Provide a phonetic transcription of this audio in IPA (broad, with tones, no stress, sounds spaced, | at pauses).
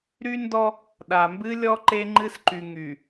ɾ y˦ n d ɔ˦ | ɗ a˨ m b ɨ˦ lʲ ɔ˦ ǃ e˦ ŋ͡ǃ ɨ˦ s ǃ y˨ ŋ y˨